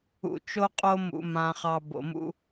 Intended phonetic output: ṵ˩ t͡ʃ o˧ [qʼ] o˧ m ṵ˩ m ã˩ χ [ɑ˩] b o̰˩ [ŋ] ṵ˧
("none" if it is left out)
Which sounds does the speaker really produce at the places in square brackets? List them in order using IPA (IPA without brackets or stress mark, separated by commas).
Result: qʼ, ɑ˩, m